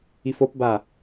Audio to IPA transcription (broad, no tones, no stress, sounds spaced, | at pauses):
i f o p b a